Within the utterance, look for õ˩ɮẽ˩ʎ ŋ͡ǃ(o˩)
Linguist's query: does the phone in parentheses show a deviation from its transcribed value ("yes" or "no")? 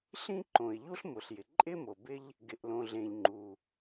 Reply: yes